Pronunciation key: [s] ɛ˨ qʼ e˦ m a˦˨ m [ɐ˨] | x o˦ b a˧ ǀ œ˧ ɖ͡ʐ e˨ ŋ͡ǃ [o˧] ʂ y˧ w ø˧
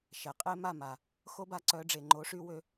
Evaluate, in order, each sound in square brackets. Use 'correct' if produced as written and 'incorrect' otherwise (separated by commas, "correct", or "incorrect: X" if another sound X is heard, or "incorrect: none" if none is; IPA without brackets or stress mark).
incorrect: ʃ, incorrect: a˨, incorrect: o˨˦